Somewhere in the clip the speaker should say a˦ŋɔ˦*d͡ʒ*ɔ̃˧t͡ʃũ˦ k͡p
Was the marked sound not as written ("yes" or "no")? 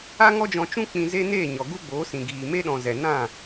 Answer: no